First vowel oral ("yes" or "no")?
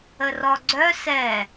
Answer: yes